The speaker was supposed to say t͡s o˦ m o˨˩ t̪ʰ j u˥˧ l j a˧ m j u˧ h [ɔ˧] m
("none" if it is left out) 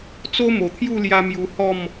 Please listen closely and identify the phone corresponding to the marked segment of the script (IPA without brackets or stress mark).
ɔ˥˧